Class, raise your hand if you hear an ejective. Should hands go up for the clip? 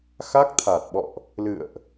no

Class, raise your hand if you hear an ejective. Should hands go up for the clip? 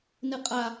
yes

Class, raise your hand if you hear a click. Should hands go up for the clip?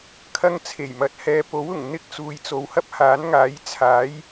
no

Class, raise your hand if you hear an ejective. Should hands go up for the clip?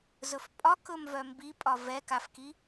yes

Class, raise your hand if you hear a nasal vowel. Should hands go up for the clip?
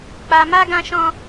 yes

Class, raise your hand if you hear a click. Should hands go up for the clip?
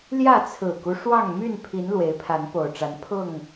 no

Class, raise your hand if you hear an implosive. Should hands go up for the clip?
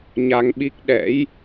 yes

